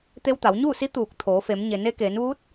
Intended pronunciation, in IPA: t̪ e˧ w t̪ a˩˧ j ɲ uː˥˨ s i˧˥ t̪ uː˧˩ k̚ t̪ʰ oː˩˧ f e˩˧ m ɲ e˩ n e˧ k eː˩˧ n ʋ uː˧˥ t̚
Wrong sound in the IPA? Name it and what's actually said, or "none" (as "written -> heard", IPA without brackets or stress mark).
j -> w